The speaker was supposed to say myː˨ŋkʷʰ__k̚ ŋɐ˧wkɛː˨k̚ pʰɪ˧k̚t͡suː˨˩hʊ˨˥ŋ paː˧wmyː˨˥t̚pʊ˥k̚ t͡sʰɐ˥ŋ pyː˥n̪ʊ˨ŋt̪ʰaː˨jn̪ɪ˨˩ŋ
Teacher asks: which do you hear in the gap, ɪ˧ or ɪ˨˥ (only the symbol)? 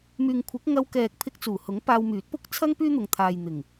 ɪ˨˥